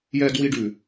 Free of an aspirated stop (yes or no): yes